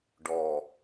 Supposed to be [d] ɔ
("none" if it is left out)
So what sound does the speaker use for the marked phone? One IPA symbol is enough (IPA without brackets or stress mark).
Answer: ɖ